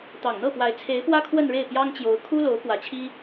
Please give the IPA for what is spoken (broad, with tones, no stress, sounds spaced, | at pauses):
t̪ ɑ˨˩ ŋ n̪ ɤ˥˩ p w a˧˥ ɪ̯ t͡sʰ e˧˥ ɪ̯ p w ä˥ kʰ w ə˥˧ n ɻ e˥˩ ɪ̯ p j ɑ˥ ŋ t͡ɕ j o˧˥ ʊ̯ kʰ u˥ l o˧˥ ʊ̯ k w ä˧˥ t͡ɕʰ i˥